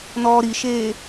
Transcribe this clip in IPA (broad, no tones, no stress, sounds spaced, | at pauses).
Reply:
n ɔː ɾ i ʃ eː